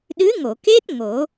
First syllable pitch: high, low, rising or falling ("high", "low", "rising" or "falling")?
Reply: rising